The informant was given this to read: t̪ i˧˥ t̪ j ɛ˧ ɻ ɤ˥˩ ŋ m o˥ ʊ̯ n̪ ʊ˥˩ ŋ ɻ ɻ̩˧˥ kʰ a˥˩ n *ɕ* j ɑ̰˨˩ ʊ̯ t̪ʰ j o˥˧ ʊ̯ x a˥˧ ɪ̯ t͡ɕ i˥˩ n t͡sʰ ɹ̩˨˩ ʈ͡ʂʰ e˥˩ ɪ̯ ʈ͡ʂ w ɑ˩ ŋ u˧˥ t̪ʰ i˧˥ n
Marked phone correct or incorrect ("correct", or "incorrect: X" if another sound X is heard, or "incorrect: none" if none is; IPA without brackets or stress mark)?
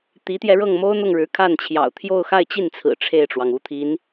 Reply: incorrect: t͡ɕʰ